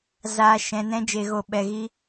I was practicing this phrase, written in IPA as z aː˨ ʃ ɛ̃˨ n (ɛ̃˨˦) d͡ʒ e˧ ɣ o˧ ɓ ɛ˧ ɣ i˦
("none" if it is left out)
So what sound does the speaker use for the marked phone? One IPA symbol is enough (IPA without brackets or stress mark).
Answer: ɛ̃˦